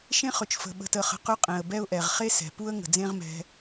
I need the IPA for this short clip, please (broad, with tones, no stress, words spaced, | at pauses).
ʃẽ˦χɵ˩t͡ʃfə̤˩ ɓə̤˨tə˨χə̤˨ qɵ˦qʼɛ̃˩ə̯bɛ˦ʊ̯ʔɛ˩ʁ χe˥sɛ̤˩pu˥ə̯ ŋə̤˩d͡zẽ˦ʁ mɛ̤˨